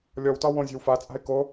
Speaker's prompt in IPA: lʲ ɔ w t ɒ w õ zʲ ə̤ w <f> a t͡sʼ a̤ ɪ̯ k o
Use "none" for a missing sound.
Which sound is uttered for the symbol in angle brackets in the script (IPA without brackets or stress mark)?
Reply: f